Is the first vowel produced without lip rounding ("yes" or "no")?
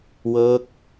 yes